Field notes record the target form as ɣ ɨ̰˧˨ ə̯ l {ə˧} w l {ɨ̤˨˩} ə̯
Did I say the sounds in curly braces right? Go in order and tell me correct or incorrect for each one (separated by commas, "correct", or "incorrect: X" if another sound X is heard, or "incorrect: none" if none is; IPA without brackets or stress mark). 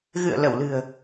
incorrect: ə˧˩, correct